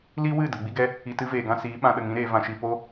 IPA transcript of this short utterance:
l i˦ w ɨ˦˨ d ə˨ ɡ͡b i˦ ɡ ɛ˦ | i˨ t ɨ˦ v eː˨ ɡ ã˦ s iː˨˦ ɓ ã˧ ɗ ə˨ ŋ ĩ˦ ɾ eː˧ v ã˧ ʃ i˧ p o˦

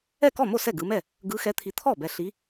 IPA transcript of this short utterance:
ɛ˥˩ k ɔ˥˩ m o˥˩ s ɛ˥˩ ɡ ɯ˨˦ m ɛ˥˩ | ɡ ɯ˨˦ x ɛ˨˦ t̪ʰ i˨ t̪ʰ ɔ˥˩ b ɛ˨ ɬ i˨˦

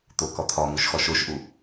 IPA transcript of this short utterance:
t̪ o k ɒ t̪ʰ ɒ ŋ u ʃ x ɒ ʃ o ʃ ʔ u

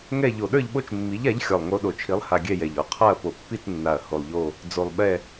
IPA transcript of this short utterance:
ŋ ɛ˦˨ ʎ o˨˩ ɗ ə˞˦˨ ʎ ɓ o˦˨ t͡ʃ mː i˨˥ ʎ a˨˥ ʎ xʲ ɔ˨˩ lˠ ŋ o˨˥ ɗ o˨˩ t͡ʃʰ i˨˥ lˠ h a˨˩ ɡʲ ɛ˦˨ j ɛ˨˩ ʎ ɔ˨˥ qʰ a˦˨ ɐ̯ p o˨˩ pː i˦˨ t͡s nː a˨˩ ɐ̯ h o˨˩ lˠ ʎ o˦˨ | d͡z o˨˩ lˠ ɓ ɛ˦˨

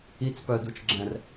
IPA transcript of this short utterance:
i t͡s p œ d u t͡ʃ ɡ͡ǁ ɛ̃ r

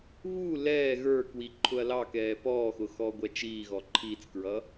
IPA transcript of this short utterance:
β u l ɛː ɣ ə˞ k w i ǃʰ ʊ ɐ̯ l ɑ k ɛː p ɔː x ʊ x ɔː ɡʷ æ t͡ʃ iː ɣ ɔ ǃʰ iː t͡s k ɹ ʌ

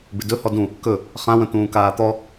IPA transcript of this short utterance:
b ɪ d ɵ h ɔ d ũ | k ɵ | χ ã w ə̃ t̪ ũː k aː t̪ ɔ

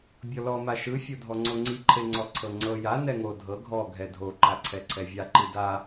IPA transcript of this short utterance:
bʲ ɔ l ɔ m a ʃ ɯ fʲ o dʱ ɔ ŋ͡ǀ o ŋ͡ǀ i ǃʰ e ŋ͡ǀ ɔ ǀʰ ɤ ŋ͡ǀ ɤ j a n ɛ ŋ o dʱ ɤ ɡʱ ɔ ɡʱ ɛ dʱ o ǃ a ǀʰ ɛ ǀʰ ɛ vʲ a ǃ i d a

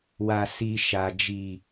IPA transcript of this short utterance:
w a˨ s iː˨ ʃ a˨ d͡ʒ i˨

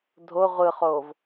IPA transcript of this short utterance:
dʱ o ʁʷ ɯ χ o v

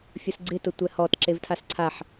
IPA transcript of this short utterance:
fʲ ʊ s ɡ͡ǀ ɪ t ʊ tʷ ɛ h ɔ t ǁ e v tʰ a s ǀʰ a ħ

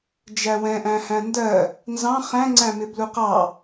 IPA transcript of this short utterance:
d͡ʒ æ w ɛ̃ ʔ æ̃ h æ̃ n d ɜ | n z ɑ̃ χ æ̃ ŋ͡ǀ æ̃ m ɪ b l u q ɑ

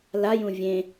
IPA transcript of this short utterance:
l a j ũ vʲ ẽ

